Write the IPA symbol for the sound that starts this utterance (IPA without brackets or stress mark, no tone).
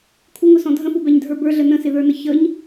kʷʰ